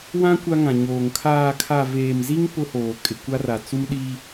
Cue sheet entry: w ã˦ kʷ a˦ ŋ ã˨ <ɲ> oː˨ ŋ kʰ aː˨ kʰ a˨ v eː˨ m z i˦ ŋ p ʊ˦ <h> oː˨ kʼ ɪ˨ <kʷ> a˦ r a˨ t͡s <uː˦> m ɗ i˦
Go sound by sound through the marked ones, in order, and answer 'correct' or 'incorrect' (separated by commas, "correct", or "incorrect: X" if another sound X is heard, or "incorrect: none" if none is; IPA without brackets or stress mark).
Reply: correct, correct, correct, incorrect: u˦